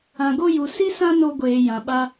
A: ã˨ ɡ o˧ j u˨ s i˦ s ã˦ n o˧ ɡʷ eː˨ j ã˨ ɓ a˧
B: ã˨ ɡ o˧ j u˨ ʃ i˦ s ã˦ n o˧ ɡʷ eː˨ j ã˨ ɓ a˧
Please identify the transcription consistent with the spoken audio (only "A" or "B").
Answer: A